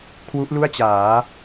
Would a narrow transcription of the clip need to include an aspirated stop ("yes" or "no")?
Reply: yes